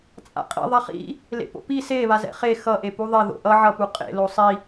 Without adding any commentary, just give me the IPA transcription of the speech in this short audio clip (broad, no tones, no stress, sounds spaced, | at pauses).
t͡sʼ a̰ qʼ ḭ ðˤ a χ ḭ | l ḛ p o̰ p i s e β a z ɛ̰ χ e x ʌ ʔ e p u ðˤ e ð o̰ ʔ ʌ ʕ ʌ p u qʼ ḛ l o sˤ i